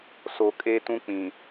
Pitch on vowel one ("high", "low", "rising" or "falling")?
low